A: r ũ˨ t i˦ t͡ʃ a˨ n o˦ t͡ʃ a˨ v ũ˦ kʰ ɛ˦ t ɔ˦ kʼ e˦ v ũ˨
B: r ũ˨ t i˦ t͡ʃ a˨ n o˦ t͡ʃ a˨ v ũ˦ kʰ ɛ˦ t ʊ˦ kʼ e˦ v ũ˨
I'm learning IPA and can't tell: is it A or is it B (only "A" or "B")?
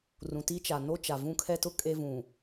B